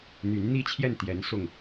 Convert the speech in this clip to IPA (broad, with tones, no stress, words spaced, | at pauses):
n̪y˧˥nn̪i˥t͡ɕʰjɛ˥˩nt̪jɛ˧˥n sʊ˥˩ŋ